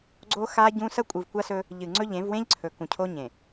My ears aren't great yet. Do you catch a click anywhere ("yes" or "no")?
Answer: yes